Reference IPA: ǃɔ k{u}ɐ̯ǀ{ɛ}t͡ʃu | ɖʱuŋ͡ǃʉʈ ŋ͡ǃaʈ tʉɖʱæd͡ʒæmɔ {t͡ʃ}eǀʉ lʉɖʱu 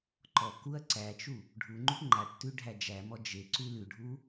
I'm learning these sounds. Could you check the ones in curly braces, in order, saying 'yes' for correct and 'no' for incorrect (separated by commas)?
yes, no, no